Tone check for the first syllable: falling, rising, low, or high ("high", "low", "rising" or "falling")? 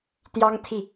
high